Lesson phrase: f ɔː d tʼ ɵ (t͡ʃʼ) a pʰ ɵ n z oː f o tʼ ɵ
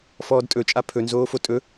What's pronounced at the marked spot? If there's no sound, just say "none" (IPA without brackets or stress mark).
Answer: t͡ʃʼ